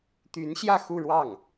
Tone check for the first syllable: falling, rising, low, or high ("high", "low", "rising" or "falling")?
rising